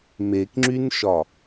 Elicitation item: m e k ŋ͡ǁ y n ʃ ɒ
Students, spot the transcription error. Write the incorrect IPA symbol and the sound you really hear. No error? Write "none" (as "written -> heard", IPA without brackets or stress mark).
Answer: none